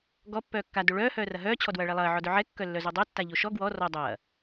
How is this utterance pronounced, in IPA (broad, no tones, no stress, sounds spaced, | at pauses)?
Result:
ɡ ɔ pː œː kː a d o ɭ œː h œː r ɐ ɦ œː t͡ɕʰ ɔ d w ɐː ɭ ɛ lˠ ɐː ʕ ɔ d œ ʕ ɛ kː œ lː œ z o dˤ o tː a ʎ o ʃ ɔ ɡ w ɔ r ɔ dˤ ɐː